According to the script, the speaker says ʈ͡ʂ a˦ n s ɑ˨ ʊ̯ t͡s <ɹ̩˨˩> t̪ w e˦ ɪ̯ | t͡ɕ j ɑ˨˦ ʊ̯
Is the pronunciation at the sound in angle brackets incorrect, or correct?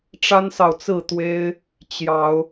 incorrect